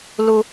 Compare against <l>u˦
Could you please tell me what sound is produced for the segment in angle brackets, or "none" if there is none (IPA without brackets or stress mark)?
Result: l